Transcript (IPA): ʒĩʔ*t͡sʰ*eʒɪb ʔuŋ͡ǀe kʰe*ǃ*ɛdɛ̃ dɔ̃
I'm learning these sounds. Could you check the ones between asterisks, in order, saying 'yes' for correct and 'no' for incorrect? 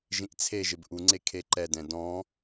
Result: yes, yes

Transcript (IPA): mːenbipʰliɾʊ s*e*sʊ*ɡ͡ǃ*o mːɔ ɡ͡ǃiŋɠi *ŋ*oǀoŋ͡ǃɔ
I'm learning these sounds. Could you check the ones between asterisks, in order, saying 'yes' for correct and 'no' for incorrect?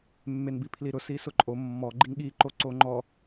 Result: no, no, no

